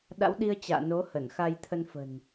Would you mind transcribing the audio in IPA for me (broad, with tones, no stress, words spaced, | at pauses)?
ɗa̰˧˥wɗi˧ə̯ t͡ɕa̰ː˧˨no˨˦ hə˧˩nxa˧j t̪ʰə˧nfə̤˨˩n